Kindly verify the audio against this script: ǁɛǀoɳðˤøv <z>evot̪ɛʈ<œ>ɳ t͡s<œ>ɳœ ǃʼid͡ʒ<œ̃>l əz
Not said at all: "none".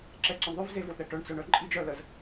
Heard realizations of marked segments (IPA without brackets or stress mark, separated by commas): z, œ, œ, œ